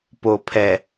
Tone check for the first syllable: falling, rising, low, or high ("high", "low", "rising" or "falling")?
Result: low